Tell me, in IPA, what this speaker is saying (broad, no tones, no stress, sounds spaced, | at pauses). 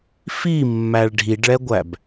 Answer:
f i mː æ ɭ ɖʱ i ɖ ɭ ɛ ɡʷ æ b